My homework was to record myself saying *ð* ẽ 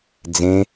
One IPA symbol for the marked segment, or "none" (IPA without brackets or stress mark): d͡z